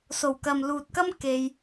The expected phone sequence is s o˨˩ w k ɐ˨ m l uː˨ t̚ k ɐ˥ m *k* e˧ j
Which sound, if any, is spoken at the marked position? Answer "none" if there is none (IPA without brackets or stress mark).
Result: k